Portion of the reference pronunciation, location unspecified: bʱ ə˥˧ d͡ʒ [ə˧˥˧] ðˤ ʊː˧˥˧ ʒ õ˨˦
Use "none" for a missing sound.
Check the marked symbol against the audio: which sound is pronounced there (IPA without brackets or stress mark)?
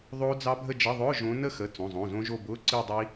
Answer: ə˧˥˧